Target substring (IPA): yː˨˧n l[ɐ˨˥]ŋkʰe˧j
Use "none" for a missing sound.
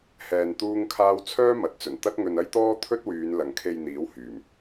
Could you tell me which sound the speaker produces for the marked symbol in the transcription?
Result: ɐ˨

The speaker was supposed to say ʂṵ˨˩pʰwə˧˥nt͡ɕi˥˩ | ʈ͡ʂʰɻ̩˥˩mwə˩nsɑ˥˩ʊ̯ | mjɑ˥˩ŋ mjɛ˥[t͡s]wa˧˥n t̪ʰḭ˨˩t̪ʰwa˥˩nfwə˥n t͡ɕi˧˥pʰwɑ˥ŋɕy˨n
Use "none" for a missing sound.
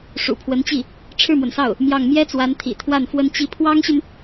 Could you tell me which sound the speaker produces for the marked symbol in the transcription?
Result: t͡s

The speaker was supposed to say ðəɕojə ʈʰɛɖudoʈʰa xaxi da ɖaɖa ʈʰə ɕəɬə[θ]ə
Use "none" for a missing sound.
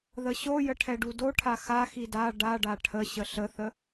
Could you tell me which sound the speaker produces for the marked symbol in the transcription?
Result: θ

